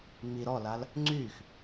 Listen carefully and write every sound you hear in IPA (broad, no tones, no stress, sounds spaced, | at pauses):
ŋ͡m i ɾ ɔ l a l | ŋ͡ǀ yː x